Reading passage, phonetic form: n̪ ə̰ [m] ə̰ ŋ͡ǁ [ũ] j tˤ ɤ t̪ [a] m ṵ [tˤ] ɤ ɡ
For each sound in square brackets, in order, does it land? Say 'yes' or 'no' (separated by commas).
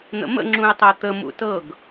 yes, yes, no, no